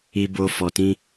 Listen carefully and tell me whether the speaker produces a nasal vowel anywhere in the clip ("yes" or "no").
yes